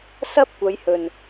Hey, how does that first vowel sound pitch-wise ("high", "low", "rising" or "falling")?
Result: high